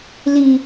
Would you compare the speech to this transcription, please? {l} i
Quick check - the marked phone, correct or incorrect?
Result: correct